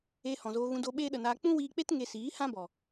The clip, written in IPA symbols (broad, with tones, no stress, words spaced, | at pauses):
e˧hɔ̃˨zoː˧ɣũ˧ do˧ɓeː˦ɗə˨naː˧ k͡pũ˦wiː˧k͡pe˦t ŋe˧siː˨˦hã˦bɔ˨